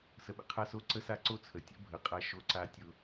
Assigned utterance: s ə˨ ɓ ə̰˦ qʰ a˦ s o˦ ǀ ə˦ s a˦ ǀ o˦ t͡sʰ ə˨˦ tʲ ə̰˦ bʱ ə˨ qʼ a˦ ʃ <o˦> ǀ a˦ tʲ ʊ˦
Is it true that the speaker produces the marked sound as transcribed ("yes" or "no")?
yes